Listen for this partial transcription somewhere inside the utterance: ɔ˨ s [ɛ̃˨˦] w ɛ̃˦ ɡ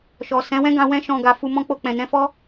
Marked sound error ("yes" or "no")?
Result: no